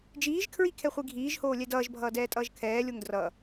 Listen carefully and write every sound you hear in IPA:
d͡ʒ iː ʒ kʰ ɹ i kʰ ɛ χʷ i ɡʱ iː ʒ h oː lʲ ɛ d ʌː ʒ bʱ ʌː d ɛː tʼ ʌː ʒ kʰ ɛː lʲ o ŋ d r ʌ

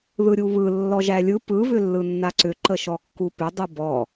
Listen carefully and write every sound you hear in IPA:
ð ɯ ɾʲ u β ɯ lː ɔ ʒ æ lʲ ɯ p ɯ β ʏ lː ɯ nː a ǀ ʏ ǃ ə ʃ ɔ kː u p ʏ dˤ ɯ b ɔ

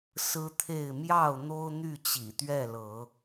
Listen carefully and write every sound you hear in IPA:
s ɹ̩˦ t̪ʰ e˥˨ ɪ̯ m j ɑ˥˨ ʊ̯ n̪ o˦ ʊ̯ n̪ y˥˨ t͡ɕ ḭ˨˩ t̪ ɥ ɛ˥˨ l ɤ˨˦

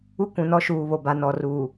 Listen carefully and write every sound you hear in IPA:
u˦ kʷ ũ˨ n ɔ˦ ʃ uː˨ β o˨ b a˨ n ɔ˨ r uː˨

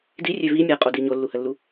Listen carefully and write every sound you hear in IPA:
d i rʲ ø v i mʲ a qʼ o d i ɲ o lː u h ə lː u

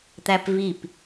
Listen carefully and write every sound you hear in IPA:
t̪ æ p v i p

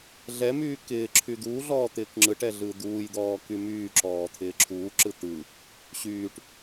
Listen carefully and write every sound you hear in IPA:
ɮ ɛ m yː k ɪː ǁʰ y d̪ uː ɮ ɔː t̪ ɪː k ŋ͡ǁ ɯ ʈ ɛ ɮ ɯ d̪ uː j d̪ ɔː k y m yː ǁ ɔː t̪ʰ ɪː ǁʰ uː ǁ ɯ t̪ ɯ | ɕ yː ʈ

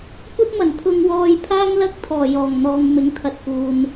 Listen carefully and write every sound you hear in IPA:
kʷ ɐ˥ t̚ m ɐ˨˩ n t̪ʰ ʊ˧ ŋ w ɔː˧ j pʰ aː˥ ŋ l ɐ˥ k̚ t̪ʰ ɔː˨˩ j ɔː˨˩ ŋ n̪ ɔː˨ ŋ m ɪ˨˥ ŋ t̪ʰ ɐ˨ t̚ k uː˨ n

